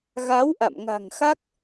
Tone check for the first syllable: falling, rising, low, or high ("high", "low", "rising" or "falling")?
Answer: rising